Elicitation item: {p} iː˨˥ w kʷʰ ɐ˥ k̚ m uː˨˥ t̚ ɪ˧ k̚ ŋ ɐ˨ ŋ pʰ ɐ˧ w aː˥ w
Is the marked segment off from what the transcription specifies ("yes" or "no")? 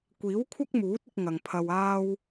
yes